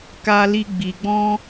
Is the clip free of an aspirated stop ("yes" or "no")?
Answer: yes